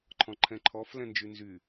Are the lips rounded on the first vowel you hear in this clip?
yes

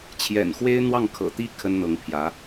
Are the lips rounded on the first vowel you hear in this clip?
no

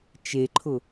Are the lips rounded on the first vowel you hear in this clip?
no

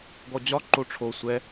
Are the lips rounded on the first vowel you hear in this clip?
yes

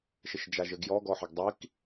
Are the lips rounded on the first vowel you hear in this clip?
no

